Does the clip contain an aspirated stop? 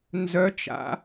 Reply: no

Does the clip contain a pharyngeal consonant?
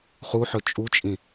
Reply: yes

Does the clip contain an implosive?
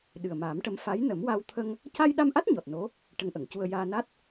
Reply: yes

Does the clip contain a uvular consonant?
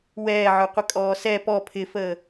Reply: yes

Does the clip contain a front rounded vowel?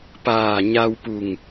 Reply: no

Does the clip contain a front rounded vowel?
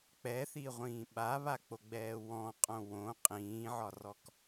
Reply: no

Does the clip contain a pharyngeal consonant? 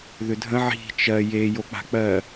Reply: yes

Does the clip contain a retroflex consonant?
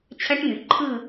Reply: yes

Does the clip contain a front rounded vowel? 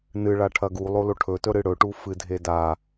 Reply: no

